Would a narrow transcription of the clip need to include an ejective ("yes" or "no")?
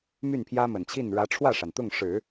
no